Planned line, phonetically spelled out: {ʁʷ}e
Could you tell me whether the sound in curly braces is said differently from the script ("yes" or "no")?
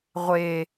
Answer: no